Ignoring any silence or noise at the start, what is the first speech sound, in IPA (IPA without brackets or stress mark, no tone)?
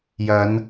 j